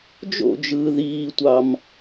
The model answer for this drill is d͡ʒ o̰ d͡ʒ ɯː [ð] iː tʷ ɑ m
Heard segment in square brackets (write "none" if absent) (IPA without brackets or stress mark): ð